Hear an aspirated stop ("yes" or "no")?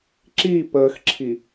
yes